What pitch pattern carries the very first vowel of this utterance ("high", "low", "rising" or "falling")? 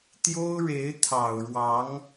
high